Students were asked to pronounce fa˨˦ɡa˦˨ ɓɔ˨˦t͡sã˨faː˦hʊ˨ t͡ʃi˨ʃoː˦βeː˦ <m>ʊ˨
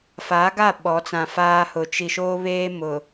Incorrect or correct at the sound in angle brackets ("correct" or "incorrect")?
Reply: correct